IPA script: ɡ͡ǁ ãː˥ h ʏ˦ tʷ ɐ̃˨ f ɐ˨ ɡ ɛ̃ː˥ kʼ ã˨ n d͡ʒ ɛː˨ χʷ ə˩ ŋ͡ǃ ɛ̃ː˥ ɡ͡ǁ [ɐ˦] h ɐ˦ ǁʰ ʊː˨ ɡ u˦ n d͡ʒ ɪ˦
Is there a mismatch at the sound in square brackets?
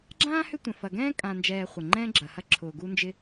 yes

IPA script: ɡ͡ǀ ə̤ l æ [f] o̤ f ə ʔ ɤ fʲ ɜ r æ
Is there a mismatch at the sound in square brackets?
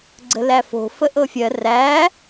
no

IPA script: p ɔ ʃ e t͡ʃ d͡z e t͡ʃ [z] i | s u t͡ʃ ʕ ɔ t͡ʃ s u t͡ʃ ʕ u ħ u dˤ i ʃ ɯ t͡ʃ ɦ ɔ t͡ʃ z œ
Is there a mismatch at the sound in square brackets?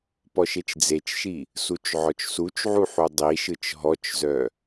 yes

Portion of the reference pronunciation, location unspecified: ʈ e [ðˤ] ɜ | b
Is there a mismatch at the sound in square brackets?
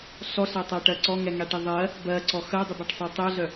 no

